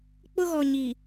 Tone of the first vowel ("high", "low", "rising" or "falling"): high